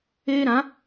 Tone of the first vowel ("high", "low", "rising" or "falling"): high